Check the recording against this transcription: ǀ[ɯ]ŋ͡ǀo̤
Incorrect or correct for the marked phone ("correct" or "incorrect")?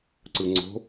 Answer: correct